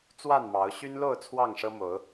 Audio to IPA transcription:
t͡s w a˥˨ n m ɑ˨˦ ʊ̯ ɕ y˦ n l o˥˨ ʊ̯ t͡sʰ w ɑ˥˨ ŋ ʂ ɤ˦ m o˨˦ ʊ̯

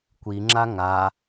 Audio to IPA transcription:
kʷ i ŋ͡ǁ a ŋ a

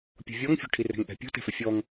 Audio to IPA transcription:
pʲ ṳ vʲ ɔ ŋ fʲ o̤ ʈʰ i r ɛ̤ ŋ ʔ ɛ̤ pʲ ṳ t ɛ̤ f ɪ fʲ ɔ ŋ

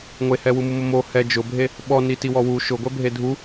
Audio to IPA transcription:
ŋʷ e h ɛ w u m u m ʊ m o h ɛ d͡ʒ ʊ bʱ e | ɓ ɔ n i t i w ɔ w u ʃ ʊ ɡʷ ɛ bʱ e dʱ u

